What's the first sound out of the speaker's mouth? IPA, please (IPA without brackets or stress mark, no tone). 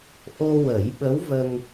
ʔ